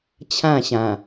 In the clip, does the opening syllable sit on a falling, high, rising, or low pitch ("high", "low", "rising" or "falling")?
falling